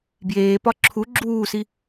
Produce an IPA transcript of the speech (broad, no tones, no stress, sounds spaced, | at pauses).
b j eː p ɒ ǁʰ u ɡ͡ǁ uː s i